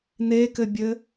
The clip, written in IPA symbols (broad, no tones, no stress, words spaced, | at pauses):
nekɘbʲɘ